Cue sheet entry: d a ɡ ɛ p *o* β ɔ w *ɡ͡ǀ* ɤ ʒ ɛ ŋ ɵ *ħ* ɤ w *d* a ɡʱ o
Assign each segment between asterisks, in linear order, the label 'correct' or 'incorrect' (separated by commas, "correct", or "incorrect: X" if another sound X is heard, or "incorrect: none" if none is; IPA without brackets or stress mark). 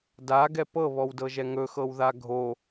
incorrect: ɤ, incorrect: d, incorrect: x, incorrect: ð